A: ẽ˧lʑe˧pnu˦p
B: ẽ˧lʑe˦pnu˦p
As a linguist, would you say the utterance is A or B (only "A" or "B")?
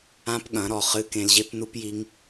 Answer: B